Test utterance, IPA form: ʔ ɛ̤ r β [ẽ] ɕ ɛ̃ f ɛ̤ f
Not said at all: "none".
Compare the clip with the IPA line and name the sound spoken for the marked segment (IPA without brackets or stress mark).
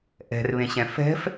ẽ